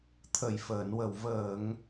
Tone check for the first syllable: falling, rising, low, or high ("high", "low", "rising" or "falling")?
low